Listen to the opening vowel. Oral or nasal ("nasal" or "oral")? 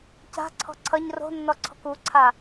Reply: oral